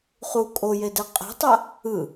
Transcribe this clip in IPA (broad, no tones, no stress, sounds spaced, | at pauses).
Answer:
χ u kʼ o j e d ɛ qʼ e̤ tˤ a | ɯ